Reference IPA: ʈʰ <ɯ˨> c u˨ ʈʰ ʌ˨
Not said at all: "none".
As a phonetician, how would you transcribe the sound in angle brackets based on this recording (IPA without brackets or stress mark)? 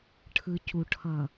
ɯ˨